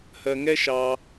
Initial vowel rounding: unrounded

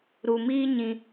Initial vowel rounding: rounded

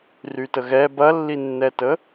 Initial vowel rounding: rounded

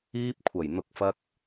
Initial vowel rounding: unrounded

